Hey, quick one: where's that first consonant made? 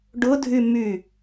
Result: retroflex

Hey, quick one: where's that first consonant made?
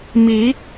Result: lips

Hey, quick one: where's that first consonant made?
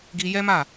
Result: velum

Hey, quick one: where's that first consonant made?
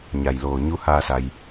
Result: palate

